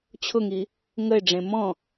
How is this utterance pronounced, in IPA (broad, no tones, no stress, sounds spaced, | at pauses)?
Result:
t͡ɕʰ ʊ ŋ i | ŋ ə ɪ̯ ɖ͡ʐ ẽ m ɔ̃